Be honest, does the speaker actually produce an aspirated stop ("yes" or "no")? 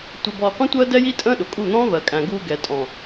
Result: no